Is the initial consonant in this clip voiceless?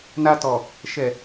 no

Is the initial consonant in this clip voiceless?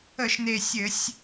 yes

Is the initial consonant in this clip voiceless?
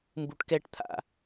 no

